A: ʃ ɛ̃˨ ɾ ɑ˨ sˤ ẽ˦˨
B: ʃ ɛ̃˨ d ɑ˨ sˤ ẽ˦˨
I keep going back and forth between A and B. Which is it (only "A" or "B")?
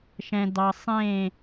B